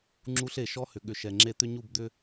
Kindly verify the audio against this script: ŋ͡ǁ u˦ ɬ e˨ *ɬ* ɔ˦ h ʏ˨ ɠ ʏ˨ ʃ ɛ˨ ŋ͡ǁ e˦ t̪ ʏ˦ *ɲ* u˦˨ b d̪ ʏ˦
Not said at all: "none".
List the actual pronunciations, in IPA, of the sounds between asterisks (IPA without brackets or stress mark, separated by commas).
ʃ, ɲ